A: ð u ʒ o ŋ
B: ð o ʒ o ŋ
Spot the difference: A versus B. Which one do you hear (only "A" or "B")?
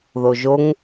B